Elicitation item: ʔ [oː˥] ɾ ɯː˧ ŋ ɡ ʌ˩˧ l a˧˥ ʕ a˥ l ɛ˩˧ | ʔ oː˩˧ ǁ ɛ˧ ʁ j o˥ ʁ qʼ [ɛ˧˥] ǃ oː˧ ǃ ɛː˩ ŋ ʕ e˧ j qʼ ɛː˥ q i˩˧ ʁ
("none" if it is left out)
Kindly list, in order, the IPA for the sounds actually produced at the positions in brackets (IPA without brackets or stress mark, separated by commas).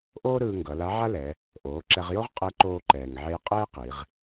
oː˥, ɛ˧˥